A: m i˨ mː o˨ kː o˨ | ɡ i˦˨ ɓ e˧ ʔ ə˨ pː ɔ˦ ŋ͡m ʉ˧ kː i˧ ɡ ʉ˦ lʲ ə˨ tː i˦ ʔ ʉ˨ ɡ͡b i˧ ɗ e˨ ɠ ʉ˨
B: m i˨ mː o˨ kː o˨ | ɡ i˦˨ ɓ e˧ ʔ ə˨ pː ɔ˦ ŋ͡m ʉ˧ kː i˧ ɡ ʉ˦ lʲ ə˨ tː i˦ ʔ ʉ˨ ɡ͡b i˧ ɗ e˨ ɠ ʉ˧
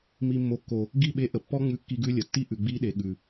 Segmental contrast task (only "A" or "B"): A